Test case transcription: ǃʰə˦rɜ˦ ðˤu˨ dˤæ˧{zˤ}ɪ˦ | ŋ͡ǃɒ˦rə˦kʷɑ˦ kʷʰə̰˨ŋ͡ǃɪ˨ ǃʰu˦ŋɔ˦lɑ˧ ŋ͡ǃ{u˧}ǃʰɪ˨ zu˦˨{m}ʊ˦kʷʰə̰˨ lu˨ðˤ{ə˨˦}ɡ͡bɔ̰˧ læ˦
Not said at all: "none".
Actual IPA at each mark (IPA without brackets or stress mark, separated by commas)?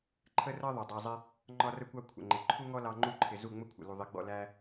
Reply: zˤ, u˦˨, ŋ͡m, ɪ˨˦